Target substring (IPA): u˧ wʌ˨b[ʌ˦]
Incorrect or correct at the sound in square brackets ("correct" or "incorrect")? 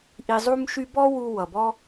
incorrect